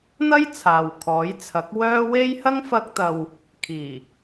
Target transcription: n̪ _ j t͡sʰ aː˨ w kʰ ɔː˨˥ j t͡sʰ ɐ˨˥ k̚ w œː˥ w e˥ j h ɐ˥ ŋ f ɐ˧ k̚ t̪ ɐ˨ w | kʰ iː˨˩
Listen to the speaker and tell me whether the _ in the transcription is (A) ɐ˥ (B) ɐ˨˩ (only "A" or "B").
A